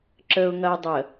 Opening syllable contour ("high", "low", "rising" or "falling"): low